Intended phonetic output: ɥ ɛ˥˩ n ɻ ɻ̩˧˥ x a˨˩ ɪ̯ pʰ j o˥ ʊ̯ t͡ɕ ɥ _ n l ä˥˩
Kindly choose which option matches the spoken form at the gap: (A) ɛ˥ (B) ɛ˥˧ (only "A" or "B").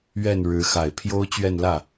B